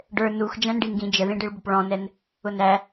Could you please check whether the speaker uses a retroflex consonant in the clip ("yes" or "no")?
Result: yes